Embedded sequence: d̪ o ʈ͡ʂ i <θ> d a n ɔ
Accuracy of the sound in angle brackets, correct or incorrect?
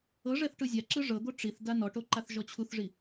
correct